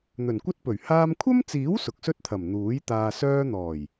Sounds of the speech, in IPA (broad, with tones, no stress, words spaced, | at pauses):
n̪ɵ˨˩nkʷɐ˥t̚pɵ˨˩ɥ haː˧mkʷʰɐ˥mt͡siː˨˥w sʊ˨k̚sɵ˥t̚t̪ʰɐ˨˩m n̪uː˨˥jt̪aː˧ sœː˧n̪ɔː˨˩j